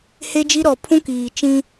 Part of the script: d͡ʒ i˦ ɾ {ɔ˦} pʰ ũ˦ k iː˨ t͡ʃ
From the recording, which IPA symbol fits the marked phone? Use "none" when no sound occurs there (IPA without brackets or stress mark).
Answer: ɔ˨